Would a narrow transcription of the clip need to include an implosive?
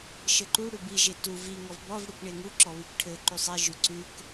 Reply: no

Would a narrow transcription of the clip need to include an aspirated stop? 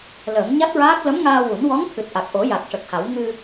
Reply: yes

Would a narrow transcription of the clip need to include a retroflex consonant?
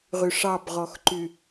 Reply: yes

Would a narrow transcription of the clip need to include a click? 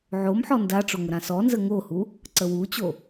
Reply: yes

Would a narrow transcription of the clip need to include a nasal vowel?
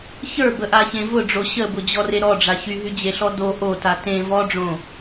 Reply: yes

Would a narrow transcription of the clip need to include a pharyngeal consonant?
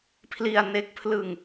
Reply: no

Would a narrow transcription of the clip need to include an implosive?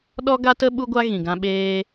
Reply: yes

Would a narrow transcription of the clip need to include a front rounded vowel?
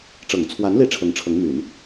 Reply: yes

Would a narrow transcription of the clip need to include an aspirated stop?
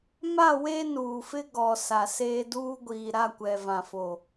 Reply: no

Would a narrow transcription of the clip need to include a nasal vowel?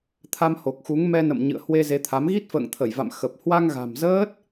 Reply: no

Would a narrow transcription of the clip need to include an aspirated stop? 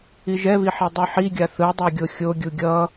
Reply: no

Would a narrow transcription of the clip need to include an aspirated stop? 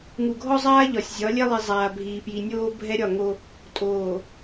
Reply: no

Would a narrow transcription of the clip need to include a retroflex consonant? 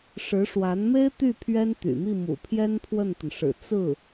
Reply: yes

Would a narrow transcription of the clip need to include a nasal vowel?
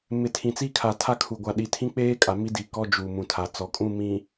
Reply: yes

